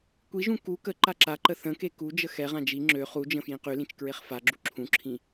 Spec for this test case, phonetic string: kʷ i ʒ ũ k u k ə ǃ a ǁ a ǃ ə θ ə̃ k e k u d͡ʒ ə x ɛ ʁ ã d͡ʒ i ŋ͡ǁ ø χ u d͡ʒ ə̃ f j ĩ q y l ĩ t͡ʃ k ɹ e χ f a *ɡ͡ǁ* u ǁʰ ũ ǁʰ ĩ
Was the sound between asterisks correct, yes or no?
yes